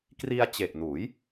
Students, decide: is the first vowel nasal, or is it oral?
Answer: oral